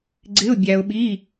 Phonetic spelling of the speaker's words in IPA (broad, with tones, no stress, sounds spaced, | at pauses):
ɡ͡ǀ ɪ˧˥˧ ʊ̯ bʲ æ˧ ʊ̯ ɓ i˧˥˧